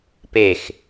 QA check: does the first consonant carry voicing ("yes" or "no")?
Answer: no